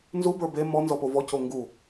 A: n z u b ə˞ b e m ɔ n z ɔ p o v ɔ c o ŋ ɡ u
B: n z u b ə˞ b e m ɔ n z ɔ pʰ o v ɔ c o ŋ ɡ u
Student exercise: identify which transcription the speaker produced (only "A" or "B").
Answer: A